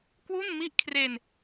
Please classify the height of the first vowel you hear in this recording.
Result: high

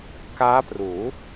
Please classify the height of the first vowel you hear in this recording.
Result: low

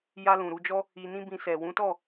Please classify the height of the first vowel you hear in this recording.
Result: low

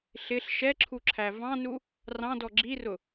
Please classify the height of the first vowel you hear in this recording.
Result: high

